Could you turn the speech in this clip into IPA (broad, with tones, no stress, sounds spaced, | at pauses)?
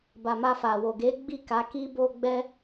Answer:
b a˨ m a˧ f a˨ w o˨ ɡ e˨˦ ɡ͡b i˦˨ k a˨˦ k i˧ b o˧ ɡ͡b ɛ˦